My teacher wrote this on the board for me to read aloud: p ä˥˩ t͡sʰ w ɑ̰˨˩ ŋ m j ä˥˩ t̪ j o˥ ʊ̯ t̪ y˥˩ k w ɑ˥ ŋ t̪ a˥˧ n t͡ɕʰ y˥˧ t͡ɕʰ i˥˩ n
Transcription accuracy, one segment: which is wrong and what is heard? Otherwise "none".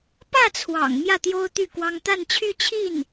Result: none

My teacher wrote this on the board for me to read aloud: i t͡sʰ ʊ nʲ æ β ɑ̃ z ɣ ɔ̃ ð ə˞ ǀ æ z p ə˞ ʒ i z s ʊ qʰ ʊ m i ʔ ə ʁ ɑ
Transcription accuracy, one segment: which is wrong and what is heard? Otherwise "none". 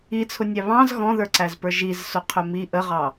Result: none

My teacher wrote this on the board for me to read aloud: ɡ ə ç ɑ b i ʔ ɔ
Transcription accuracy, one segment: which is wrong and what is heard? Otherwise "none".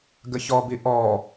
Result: ɑ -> ɔ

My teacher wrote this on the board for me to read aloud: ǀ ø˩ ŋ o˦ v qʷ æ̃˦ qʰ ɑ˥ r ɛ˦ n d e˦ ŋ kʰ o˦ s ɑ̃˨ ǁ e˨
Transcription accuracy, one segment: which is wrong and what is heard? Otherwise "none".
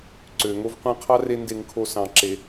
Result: ɛ˦ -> e˦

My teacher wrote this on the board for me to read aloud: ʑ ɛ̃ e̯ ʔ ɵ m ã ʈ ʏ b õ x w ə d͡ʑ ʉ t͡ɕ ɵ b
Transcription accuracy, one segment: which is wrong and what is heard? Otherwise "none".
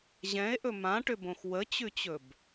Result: d͡ʑ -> t͡ɕ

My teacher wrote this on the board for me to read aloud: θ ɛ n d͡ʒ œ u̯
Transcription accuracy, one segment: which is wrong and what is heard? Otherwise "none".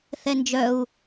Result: none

